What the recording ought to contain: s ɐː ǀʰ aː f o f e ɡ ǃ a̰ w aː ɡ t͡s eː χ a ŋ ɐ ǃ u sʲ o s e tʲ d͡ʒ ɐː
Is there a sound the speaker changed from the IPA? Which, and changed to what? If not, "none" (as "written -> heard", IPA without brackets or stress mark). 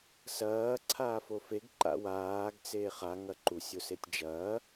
none